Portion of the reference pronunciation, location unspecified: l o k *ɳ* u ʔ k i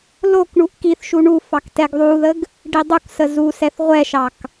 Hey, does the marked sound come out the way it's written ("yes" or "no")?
yes